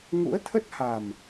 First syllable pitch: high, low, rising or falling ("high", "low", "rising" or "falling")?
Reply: rising